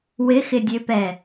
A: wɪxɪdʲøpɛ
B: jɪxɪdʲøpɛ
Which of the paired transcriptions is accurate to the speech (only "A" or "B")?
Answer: A